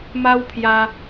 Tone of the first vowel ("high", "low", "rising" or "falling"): high